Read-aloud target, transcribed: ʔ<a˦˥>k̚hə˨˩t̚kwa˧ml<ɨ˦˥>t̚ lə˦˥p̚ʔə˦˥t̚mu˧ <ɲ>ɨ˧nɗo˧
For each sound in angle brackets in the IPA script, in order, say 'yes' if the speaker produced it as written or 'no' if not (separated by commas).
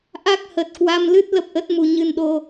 yes, yes, yes